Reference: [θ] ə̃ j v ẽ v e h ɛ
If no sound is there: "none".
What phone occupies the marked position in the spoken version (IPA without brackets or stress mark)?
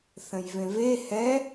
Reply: θ